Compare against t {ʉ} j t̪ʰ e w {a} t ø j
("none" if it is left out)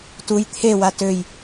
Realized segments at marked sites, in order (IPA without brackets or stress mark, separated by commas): u, a